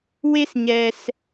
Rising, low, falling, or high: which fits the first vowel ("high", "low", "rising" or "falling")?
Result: high